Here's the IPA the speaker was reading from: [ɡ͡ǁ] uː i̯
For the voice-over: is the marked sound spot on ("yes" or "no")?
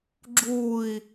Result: yes